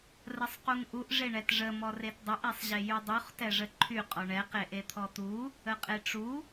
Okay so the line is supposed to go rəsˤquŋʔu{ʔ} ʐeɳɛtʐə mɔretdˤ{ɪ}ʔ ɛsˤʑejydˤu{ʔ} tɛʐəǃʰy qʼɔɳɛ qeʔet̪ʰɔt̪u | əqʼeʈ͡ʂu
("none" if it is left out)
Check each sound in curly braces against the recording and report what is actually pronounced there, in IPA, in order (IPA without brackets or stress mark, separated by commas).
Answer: ʔ, ə, χ